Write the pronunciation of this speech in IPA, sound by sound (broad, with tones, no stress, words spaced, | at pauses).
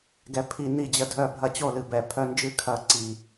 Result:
ɡɛ˦pʰi˦ ni˥˨d͡ʑə˥˨dʱœ˥˨ bʱɐ˥˨t͡ɕo˥˨lɨ˨˩bɛ˨˩ pʰœ˦nd͡ʒɨ˥˨ kʰɐ˥˨ ǀi˨˩